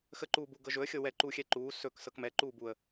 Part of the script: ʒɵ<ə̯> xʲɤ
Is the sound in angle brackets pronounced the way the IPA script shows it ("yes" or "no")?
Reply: yes